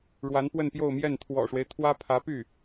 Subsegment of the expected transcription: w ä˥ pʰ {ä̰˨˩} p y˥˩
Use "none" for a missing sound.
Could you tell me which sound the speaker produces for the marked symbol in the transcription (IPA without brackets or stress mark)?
ä˧˥